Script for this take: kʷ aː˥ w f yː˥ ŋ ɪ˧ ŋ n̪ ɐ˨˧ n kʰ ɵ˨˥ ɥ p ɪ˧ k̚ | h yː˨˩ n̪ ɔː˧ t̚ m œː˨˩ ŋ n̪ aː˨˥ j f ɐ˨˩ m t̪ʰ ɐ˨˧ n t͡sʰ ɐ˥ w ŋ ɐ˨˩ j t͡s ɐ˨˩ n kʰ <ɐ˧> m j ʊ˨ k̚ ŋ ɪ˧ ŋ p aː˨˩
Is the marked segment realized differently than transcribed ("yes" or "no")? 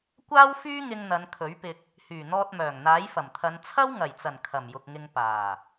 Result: yes